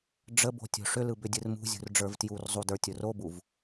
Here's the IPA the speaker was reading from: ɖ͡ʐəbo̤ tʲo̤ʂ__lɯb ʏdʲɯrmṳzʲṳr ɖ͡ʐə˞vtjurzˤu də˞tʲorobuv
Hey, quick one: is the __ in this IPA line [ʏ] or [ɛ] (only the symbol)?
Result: ʏ